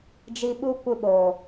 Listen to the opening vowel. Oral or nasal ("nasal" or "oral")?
oral